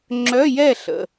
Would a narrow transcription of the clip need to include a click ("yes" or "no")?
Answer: yes